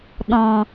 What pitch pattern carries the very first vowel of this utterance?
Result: low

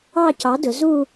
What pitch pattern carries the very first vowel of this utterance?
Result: falling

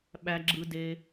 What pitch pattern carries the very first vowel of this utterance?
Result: low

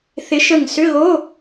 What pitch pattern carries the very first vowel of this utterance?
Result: rising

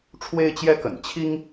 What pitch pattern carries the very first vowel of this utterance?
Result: high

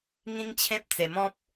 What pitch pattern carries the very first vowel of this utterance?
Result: high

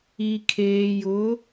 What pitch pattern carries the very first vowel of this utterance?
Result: low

